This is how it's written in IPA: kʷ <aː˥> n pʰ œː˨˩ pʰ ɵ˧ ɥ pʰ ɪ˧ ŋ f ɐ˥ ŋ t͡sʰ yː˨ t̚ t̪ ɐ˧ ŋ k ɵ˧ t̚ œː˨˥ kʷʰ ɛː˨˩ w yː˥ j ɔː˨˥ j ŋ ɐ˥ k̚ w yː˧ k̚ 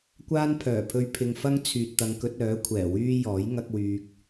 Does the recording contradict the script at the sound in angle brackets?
no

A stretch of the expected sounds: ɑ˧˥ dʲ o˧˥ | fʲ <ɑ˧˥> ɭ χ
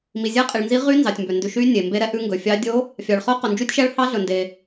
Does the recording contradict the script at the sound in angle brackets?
yes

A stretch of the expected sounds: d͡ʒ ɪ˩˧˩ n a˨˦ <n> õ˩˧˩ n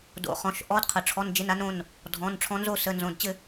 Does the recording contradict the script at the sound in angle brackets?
no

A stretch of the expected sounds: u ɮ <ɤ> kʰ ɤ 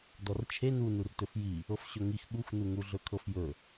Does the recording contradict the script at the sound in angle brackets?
yes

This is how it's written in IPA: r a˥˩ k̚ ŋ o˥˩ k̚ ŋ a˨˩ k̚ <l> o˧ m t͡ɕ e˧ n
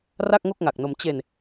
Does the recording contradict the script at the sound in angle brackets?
yes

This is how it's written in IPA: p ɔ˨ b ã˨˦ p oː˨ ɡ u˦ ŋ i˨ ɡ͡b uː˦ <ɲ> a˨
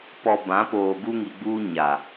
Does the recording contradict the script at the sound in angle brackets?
no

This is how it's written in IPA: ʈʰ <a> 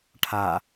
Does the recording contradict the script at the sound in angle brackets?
no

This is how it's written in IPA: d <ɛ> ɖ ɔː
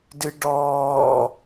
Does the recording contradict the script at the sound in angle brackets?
yes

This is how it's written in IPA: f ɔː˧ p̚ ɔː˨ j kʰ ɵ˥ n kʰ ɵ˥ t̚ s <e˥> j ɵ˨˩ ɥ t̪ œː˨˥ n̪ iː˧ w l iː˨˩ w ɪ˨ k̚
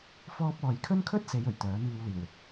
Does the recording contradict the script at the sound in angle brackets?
yes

